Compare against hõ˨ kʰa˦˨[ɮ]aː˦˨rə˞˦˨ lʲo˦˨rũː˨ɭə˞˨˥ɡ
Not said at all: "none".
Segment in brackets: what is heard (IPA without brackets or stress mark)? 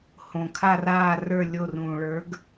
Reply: r